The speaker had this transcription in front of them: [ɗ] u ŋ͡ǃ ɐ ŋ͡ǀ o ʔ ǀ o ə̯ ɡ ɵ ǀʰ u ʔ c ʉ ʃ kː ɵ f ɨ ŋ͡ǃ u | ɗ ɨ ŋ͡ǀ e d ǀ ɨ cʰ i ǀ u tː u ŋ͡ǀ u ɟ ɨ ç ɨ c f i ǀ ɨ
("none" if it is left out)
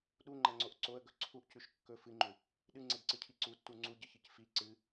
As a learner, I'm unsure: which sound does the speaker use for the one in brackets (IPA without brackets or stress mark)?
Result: ɗ